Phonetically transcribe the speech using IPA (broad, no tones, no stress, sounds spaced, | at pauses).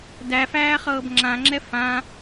d æ f æː χ ɤː b ŋ͡ǁ ã ŋ͡ǁ ɛ f ã